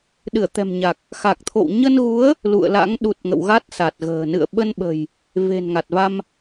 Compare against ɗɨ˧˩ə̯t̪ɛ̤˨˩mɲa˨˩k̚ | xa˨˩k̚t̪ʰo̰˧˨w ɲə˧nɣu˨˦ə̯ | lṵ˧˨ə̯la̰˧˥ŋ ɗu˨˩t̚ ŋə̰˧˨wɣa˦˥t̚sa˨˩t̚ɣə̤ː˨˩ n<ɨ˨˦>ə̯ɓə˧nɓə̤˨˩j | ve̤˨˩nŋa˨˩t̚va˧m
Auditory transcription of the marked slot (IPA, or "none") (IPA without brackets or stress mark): ɨ̰˧˨